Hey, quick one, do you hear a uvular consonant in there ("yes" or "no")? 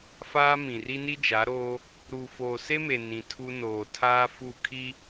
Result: no